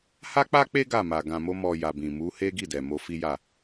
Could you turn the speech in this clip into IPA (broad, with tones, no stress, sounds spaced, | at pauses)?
h a˦ k͡p a˦ k͡p e˦ ɡ a˦˨ m a˨ ɡ ã˨ m o˧ m ɔ˨ j a˨ b ĩ˨ m u˨˦ h e˦ ɡ i˦˨ d ɛ˨ m o˧ f i˦ j a˦˨